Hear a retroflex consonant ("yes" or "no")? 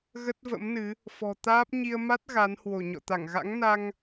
no